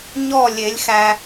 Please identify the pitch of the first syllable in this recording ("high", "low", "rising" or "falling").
falling